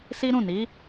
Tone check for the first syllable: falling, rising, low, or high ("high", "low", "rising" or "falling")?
high